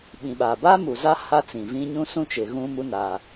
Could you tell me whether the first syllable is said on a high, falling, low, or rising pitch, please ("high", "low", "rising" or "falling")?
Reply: low